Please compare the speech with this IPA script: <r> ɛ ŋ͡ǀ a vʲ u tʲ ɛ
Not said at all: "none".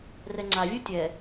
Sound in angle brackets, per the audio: r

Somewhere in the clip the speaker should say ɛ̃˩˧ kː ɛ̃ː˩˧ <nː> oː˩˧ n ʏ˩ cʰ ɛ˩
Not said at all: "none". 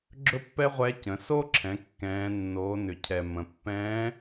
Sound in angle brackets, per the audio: nː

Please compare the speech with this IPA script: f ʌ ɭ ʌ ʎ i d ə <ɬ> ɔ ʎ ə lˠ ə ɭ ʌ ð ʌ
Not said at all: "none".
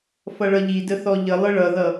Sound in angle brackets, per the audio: θ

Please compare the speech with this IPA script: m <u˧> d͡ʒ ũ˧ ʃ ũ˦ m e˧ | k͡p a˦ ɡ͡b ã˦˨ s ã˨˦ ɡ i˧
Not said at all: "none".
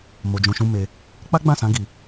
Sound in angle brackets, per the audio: o˧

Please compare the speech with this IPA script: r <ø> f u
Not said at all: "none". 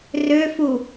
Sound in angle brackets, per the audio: ø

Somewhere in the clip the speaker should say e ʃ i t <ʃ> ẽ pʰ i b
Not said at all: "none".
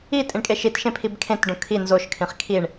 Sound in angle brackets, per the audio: ʃ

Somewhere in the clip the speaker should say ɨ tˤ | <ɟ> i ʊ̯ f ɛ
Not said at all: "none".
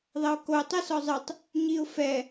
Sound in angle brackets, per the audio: ɲ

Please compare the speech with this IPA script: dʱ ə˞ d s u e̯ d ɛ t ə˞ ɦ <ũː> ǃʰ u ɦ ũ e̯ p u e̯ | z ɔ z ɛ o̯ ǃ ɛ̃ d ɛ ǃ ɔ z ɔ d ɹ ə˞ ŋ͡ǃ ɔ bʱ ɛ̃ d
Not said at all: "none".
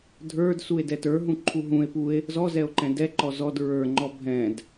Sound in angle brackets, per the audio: ũ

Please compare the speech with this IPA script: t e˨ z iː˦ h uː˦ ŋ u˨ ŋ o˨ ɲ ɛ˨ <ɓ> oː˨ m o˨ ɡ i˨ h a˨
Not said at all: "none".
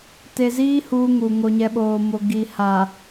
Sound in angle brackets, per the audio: ɓ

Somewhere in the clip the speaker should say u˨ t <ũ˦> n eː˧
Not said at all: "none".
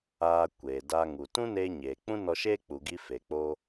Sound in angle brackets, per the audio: ũ˦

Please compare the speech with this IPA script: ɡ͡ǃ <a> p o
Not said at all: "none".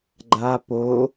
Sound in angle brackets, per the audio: a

